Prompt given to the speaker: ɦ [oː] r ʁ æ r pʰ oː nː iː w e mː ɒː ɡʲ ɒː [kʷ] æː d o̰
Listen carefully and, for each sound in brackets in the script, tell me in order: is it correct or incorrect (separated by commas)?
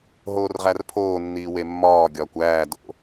correct, correct